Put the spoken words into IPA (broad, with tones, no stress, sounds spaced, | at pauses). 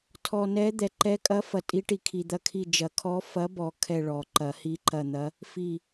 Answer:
tʰ ɔ˨ n ɛ˧˥ d̪ ɛ˨ ǃ ɛ˧˥ kʼ ɐ˧˥ f ɐ˨ tʼ i˧˥ ʈ i˨ kʰ i˨ d̪ ɐ˦˨ kʰ i˦˨ d͡ʒ ɐ˨˩˦ kʰ ɔ˧˥ f ɐ˧˥ b ɔ˨ kʰ ɛ˦˨ ɭ ɔ˨˩˦ ǃ ɐ˨˩˦ h i˧˥ ǃ ɐ˦˨ n̪ ɐ˧˥ | f i˦˨